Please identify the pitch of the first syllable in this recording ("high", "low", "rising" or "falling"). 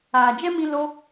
low